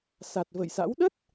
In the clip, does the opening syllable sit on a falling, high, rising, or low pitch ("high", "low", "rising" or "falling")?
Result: low